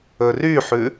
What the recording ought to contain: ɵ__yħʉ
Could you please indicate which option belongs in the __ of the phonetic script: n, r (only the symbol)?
r